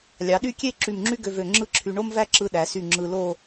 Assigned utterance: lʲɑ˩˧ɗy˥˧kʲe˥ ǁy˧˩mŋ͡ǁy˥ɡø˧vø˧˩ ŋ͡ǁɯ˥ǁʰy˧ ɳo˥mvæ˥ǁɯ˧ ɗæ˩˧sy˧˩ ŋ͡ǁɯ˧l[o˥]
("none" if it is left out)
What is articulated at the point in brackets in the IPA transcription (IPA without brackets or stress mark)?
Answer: o˥˧